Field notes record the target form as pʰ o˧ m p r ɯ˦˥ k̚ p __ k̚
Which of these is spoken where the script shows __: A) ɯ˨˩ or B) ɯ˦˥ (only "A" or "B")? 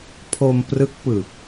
A